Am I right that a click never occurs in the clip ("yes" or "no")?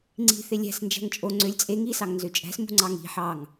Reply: no